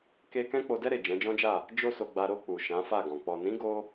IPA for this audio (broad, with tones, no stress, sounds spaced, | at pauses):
k e˧ k ɛ̃˦ k͡p o˧ d ɛ˦ ɾ e˦˨ d͡ʒ ɛ̃˨˦ d͡ʒ ɔ̃˦ d͡ʒ a˦˨ | d͡ʒ o˦ s o˧ ɡ͡b a˧ ɾ o˧ k͡p u˨ ʃ ã˨˦ f a˦˨ ɡ ɔ̃˨ k͡p ɔ˨ n ĩ˨˦ ɡ o˦